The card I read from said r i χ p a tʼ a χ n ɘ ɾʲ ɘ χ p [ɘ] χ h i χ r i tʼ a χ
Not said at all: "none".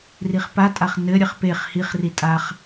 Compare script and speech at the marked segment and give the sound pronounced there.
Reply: e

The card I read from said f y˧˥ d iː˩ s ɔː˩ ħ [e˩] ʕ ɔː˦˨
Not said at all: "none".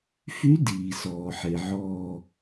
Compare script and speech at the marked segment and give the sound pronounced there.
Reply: e˩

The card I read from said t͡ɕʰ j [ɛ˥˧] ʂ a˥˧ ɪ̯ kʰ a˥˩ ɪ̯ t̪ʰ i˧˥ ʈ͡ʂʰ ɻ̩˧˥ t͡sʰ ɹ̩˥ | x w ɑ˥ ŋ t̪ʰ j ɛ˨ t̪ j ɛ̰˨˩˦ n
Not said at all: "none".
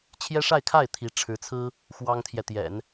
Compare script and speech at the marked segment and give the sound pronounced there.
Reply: ɛ˥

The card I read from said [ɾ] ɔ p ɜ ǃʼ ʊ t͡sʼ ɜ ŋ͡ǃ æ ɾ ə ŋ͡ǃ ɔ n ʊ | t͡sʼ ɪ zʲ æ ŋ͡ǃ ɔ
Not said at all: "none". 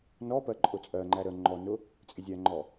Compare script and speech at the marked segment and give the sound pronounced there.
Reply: n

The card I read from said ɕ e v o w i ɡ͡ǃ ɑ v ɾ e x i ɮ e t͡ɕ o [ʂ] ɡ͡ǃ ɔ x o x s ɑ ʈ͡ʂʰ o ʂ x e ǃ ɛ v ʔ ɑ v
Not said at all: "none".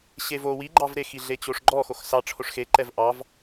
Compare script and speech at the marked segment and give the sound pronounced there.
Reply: ʂ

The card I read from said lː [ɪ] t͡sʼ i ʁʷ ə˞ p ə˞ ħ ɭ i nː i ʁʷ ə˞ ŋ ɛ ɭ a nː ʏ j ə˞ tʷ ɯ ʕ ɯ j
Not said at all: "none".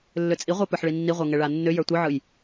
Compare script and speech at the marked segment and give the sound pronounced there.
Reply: ʏ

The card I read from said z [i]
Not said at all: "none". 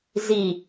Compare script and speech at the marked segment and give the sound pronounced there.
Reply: i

